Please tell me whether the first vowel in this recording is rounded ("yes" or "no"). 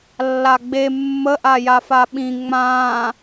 no